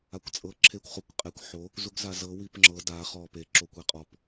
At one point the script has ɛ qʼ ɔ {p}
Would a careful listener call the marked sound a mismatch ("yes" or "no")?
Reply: no